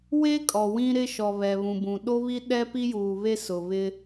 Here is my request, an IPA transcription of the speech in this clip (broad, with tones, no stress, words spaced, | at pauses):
we˦ kʼɔ˨wĩ˦ ɾɪ˦ʃɔ˨ βɛ˨βũ˨bũ˨ ɗo˦βi˦ ɗɛ˦pi˦juː˨βe˦ sʊ˨ βɪ˦